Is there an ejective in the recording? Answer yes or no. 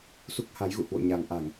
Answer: no